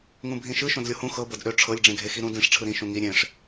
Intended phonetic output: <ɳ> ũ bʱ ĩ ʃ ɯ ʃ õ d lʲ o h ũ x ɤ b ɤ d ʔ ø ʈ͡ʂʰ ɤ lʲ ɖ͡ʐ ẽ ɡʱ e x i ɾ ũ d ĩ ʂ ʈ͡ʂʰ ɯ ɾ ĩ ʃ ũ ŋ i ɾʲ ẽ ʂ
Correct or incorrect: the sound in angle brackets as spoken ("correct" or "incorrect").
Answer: incorrect